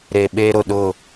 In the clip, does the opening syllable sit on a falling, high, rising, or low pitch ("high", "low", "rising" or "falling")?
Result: low